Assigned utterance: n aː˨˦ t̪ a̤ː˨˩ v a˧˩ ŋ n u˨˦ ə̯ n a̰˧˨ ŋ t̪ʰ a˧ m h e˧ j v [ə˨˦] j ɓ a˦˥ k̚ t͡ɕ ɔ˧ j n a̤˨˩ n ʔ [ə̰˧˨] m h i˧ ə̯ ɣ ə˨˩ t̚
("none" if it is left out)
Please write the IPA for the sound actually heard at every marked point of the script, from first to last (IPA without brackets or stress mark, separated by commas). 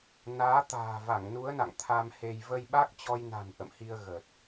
ə˧, ə̰˧˨